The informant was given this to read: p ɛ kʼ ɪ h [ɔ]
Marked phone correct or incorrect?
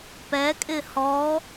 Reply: correct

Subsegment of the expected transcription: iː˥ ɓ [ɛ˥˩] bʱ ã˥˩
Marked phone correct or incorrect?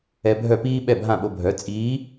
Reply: correct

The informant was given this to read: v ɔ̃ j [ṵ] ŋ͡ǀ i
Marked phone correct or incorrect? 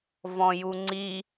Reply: incorrect: u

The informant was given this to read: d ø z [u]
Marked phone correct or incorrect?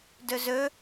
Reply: incorrect: ø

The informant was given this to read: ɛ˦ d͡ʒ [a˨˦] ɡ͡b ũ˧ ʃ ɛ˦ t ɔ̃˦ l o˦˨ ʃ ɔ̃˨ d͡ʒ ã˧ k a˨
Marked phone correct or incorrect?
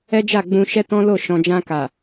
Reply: incorrect: a˦˨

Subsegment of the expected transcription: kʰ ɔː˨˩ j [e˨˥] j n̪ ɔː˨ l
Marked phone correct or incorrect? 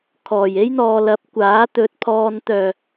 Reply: incorrect: e˥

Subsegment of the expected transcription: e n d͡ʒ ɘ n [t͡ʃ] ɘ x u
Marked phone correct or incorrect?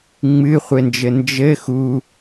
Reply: incorrect: d͡ʒ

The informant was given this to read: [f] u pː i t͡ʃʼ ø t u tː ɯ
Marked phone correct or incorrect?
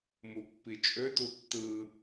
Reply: incorrect: m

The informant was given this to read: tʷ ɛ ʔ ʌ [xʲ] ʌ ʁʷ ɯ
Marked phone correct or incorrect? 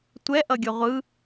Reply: incorrect: ɡʲ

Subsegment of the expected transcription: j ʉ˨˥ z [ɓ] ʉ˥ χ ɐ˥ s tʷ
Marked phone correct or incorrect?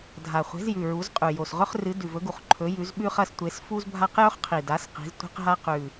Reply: correct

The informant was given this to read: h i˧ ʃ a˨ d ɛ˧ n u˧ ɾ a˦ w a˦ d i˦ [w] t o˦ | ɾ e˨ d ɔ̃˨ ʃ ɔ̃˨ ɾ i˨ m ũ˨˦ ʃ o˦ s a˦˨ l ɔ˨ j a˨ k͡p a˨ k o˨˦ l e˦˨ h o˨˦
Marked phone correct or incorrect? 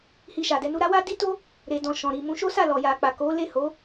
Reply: incorrect: none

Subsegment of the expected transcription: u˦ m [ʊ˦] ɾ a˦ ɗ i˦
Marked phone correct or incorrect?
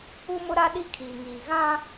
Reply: correct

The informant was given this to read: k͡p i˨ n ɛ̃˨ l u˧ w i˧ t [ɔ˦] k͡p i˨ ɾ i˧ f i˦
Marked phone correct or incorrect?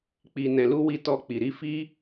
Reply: incorrect: ɔ˧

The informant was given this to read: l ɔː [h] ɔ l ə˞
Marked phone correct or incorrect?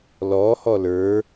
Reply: correct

